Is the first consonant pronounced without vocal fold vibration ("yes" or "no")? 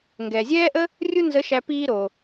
no